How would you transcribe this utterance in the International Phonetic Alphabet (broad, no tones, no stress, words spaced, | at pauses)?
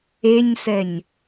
eɲsɛɲ